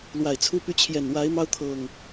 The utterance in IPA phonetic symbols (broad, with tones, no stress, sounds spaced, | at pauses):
l w a˨˩ ɪ̯ t͡sʰ u˦ p y˦ t͡ɕʰ j ɛ˨˩ n w a˨˦ ɪ̯ m ɑ˦ ʊ̯ t̪ʰ ɤ˨˩ ŋ